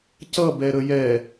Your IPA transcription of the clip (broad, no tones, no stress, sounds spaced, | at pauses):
c ʌ b ɛ ɾ ə j ɛ